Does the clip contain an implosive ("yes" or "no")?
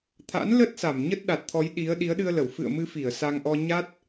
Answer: yes